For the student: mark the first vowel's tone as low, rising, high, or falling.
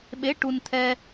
rising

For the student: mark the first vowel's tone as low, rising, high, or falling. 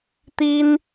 high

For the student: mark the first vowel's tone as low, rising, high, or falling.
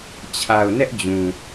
low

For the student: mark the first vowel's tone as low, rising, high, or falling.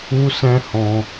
high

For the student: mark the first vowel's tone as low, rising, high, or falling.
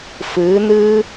rising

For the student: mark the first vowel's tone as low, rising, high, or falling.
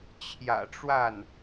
low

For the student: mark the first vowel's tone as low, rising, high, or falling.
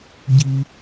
high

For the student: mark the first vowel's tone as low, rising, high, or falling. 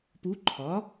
rising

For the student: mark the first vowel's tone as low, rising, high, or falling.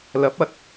rising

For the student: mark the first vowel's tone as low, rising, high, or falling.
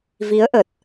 rising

